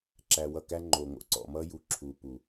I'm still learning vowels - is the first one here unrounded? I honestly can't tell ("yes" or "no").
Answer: yes